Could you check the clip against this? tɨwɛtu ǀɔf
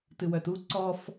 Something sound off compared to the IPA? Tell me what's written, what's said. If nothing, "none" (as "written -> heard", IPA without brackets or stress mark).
ɛ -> œ